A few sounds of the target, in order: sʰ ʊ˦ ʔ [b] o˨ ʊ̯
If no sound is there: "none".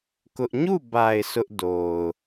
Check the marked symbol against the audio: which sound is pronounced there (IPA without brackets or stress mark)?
d